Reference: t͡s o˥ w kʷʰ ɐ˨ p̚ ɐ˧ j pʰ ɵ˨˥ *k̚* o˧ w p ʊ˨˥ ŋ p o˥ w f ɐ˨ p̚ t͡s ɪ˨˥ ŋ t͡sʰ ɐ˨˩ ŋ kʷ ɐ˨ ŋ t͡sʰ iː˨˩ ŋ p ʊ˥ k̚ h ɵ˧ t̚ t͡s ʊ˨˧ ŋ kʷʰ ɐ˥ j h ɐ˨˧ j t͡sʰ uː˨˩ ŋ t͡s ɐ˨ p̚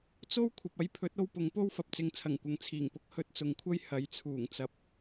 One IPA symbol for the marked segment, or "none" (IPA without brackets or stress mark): t̚